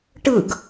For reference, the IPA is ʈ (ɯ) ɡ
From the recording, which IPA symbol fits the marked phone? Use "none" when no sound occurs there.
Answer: ɯ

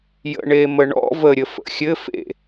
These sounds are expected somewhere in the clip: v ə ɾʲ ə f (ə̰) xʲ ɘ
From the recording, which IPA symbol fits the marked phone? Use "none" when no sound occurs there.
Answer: ə̰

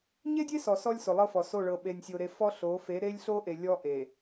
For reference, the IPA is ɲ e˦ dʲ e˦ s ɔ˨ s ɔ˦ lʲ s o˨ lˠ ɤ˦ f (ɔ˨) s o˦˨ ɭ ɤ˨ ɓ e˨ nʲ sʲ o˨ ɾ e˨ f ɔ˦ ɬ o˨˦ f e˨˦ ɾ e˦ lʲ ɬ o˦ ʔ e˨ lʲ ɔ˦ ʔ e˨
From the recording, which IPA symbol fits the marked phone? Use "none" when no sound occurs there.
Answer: ɔ˨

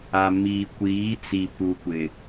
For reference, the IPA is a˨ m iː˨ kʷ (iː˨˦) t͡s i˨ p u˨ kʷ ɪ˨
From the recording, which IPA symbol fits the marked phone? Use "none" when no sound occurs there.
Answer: iː˨˦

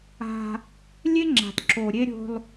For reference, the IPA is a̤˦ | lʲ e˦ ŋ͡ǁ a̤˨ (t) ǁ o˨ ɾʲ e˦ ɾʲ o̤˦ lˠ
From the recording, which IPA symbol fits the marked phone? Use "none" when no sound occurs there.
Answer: t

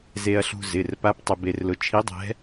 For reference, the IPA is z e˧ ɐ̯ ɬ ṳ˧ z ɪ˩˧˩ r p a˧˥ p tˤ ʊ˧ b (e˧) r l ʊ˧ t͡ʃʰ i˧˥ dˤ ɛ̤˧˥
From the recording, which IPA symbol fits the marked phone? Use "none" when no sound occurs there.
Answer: e˧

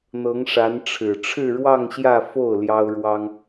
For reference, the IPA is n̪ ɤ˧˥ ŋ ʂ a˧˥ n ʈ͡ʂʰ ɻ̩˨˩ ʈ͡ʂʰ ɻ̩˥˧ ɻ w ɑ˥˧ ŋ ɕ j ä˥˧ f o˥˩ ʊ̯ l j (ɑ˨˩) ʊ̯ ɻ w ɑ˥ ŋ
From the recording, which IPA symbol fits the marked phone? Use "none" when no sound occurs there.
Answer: ɑ˥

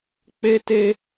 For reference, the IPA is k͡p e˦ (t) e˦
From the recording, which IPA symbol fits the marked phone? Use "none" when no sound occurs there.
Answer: t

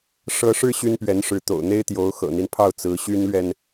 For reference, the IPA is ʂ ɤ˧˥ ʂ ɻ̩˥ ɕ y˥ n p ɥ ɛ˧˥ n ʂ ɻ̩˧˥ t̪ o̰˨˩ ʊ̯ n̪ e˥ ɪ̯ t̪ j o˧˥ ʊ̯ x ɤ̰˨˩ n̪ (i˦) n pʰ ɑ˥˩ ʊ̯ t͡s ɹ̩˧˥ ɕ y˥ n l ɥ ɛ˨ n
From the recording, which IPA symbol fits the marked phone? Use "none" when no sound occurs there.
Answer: i˦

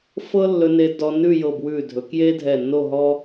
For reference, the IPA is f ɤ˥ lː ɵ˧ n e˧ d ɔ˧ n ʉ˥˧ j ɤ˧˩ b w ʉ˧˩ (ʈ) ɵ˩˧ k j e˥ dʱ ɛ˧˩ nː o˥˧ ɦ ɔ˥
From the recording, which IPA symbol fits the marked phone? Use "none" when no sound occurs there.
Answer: dʱ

